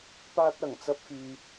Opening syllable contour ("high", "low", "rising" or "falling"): high